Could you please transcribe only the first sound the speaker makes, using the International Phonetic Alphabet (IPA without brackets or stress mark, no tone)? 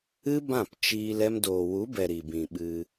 ɨ